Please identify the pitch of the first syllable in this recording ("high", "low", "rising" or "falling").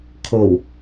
low